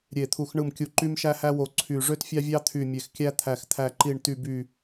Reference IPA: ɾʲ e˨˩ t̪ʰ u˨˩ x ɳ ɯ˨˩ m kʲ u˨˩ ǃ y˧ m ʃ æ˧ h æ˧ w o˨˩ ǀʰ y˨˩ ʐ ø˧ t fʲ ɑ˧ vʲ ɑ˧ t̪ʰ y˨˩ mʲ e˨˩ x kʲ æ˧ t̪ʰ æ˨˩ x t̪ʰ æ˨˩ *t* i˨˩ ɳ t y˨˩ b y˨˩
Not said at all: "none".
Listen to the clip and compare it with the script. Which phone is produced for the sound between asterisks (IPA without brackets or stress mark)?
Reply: ǃ